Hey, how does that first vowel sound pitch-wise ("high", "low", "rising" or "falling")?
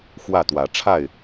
falling